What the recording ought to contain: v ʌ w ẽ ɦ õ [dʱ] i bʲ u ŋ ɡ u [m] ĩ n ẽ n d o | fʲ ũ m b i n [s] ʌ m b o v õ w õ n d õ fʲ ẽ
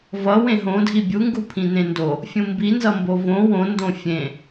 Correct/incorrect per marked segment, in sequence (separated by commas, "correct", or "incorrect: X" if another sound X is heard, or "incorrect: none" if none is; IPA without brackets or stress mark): correct, incorrect: pʰ, incorrect: z